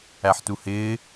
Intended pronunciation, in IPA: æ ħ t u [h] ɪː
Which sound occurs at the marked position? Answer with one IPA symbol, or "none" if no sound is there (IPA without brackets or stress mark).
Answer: h